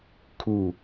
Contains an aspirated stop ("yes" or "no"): yes